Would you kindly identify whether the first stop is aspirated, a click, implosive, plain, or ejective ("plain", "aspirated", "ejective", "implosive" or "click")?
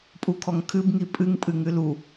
ejective